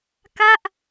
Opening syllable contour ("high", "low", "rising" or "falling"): falling